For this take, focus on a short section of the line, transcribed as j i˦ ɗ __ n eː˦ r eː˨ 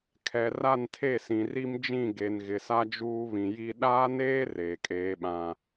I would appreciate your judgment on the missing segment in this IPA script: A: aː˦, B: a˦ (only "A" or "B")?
A